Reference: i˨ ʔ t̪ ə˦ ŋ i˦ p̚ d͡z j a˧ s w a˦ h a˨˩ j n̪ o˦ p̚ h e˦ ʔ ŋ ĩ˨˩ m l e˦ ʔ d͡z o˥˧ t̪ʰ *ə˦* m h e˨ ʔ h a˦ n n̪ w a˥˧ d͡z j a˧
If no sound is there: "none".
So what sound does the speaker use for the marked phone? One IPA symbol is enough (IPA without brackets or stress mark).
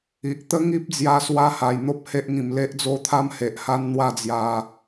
a˦